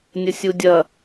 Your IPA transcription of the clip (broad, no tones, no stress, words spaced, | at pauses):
nʲəsʲudʲɐ